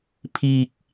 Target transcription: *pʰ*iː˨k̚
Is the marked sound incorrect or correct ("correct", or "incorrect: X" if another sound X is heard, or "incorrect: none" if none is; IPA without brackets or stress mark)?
correct